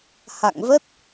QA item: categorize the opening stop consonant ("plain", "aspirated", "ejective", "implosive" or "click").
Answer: plain